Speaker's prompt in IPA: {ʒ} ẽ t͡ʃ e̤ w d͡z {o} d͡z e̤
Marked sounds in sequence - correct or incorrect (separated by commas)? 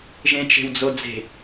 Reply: correct, correct